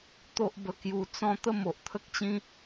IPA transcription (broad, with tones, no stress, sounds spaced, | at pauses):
t̪ o˦ ʔ b ə˧ k j u˧ t͡s ɔ̃˦ t̪ ə˥˧ m o˨ ʔ t̪ʰ ə˦ k̚ t͡ɕ ĩ˦